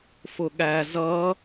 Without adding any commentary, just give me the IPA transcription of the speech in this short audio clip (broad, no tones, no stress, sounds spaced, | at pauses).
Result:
f ʊ ɠ æ z ʌ